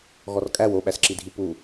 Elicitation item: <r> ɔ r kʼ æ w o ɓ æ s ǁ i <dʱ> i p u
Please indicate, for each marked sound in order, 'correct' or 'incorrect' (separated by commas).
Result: incorrect, correct